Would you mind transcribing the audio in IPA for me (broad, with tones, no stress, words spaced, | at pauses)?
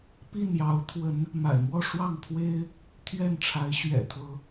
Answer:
pi˥˨njɑ˨˦ʊ̯t̪ʰwə˨˦n | ma̰˨˩ɪ̯mwɔ˥˨ʂwɑ˥˨ŋ pʰwe˦ɪ̯ | t̪ʰɥɛ˥˨nʈ͡ʂʰa˨˦ɪ̯ ɕɥɛ̰˨˩t̪ʰɤ˨˦